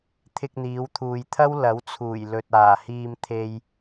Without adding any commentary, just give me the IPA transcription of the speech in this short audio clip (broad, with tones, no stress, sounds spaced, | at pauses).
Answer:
t̪ʰ ɪ˧ k̚ n̪ iː˨˧ w t̪ʰ uː˨ j t̪ʰ ɐ˥ w l ɐ˨˥ w t͡sʰ uː˨˩ j l ɵ˨ t̚ aː˨˩ h iː˧ m t̪ʰ e˧ j